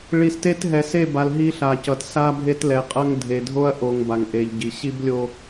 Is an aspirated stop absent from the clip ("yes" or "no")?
yes